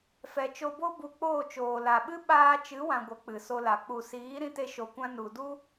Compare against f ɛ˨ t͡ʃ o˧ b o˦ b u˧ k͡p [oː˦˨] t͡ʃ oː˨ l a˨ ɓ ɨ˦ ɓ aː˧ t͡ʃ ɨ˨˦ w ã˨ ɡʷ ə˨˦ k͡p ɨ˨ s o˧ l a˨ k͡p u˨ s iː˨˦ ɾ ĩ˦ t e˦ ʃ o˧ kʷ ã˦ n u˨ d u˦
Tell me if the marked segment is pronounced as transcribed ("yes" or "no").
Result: yes